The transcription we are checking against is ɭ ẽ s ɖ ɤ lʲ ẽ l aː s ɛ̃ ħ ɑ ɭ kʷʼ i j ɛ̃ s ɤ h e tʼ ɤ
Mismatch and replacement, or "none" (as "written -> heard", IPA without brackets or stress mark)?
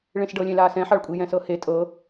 none